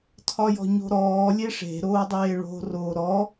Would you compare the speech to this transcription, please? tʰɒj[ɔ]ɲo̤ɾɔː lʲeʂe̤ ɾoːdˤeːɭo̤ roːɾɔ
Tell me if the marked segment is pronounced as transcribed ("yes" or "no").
no